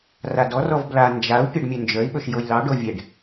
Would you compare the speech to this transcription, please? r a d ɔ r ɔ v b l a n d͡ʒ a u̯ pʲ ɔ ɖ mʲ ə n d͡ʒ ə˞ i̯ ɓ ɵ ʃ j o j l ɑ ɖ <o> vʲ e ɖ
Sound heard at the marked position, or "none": o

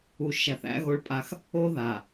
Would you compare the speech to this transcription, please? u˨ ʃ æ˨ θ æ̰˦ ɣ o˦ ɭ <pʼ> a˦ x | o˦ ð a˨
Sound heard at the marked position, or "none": pʼ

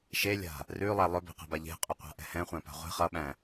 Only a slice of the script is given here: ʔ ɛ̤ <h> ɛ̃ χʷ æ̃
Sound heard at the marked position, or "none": h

